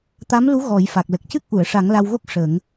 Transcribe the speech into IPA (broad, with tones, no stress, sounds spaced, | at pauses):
t̪ a˧˥ m l u˧˥ ɣ ɔ˨˩˦ j f a˨˩ k̚ l ə˨˩ k̚ c ɨ˦˥ k̚ ʔ u˨˩˨ ə̯ ʂ a˨˩˦ ŋ l a˧ w ɣ o˦˥ k̚ ʂ ə˨˩˦ ŋ